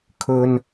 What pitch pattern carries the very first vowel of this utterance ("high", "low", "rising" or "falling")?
high